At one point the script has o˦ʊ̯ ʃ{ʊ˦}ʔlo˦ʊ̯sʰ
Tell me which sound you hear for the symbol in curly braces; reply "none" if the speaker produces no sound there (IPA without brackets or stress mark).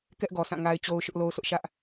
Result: ʊ˦